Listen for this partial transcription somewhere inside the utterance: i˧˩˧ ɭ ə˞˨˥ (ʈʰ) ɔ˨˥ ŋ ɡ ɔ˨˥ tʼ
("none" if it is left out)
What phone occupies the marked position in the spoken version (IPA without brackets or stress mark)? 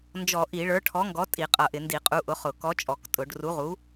ʈʰ